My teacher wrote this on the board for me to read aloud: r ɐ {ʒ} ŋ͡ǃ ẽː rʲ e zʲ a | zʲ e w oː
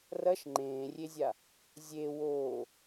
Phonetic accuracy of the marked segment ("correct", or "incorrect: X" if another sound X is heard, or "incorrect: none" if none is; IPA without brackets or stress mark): incorrect: ʃ